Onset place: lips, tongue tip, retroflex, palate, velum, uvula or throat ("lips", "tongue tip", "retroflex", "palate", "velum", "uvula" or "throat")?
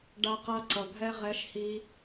retroflex